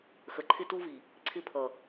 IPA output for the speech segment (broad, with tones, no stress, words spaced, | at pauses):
xə˨ǃʰɪ˦tu˦vi˨ | ǀʰɪ˦pʰʌ˨